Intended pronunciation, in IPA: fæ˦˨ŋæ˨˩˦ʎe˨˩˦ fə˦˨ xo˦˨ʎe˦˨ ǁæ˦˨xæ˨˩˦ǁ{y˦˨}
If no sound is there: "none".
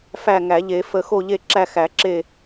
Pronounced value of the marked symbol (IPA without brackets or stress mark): e˦˨